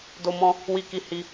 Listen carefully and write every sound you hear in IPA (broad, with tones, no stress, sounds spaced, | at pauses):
d o˦ m ɔ̃˦ | w i˦ k i˦ h i˦